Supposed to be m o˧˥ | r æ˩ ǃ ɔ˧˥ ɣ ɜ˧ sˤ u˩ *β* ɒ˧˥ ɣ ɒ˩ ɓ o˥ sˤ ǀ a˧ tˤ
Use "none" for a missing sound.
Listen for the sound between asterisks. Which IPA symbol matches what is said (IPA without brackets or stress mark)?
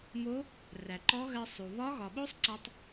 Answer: β